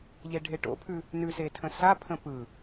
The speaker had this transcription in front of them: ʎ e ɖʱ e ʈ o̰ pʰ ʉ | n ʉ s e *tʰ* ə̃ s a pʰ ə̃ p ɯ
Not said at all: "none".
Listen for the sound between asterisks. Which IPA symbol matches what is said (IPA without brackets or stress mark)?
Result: tʰ